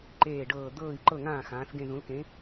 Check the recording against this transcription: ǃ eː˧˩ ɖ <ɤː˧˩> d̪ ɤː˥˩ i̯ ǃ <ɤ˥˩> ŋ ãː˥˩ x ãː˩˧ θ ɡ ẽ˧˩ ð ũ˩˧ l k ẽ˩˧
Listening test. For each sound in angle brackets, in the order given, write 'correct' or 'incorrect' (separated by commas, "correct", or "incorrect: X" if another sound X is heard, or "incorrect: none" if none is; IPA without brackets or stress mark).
correct, correct